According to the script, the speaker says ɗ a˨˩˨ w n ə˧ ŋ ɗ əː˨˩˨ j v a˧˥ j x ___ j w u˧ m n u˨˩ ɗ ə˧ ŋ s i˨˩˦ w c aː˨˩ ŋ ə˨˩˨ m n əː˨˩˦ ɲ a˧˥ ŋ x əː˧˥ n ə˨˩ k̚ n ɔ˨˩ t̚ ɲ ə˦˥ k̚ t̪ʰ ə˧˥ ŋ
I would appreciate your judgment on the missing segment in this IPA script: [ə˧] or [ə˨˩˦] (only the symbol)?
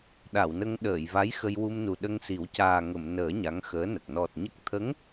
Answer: ə˧